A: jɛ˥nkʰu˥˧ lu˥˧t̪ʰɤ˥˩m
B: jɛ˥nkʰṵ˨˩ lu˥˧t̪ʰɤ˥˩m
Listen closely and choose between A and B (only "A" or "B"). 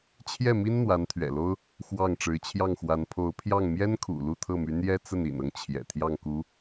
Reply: B